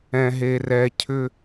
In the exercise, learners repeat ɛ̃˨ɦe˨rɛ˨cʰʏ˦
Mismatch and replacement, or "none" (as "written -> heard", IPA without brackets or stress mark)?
none